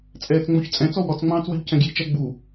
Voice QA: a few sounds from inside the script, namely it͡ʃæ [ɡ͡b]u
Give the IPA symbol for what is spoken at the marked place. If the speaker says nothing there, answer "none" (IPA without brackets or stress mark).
ɡ͡b